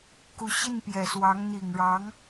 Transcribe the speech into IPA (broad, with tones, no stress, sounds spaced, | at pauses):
k u˧˥ ɕ i˥˩ n p j ɛ˨˩ s w ɑ˧˥ ŋ n̪ i˨˩ ŋ ɻ ɑ˧˥ ŋ